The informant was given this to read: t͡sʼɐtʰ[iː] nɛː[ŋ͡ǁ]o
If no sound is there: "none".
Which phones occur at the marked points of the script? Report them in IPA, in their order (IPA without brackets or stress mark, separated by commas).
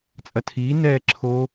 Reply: iː, ǁʰ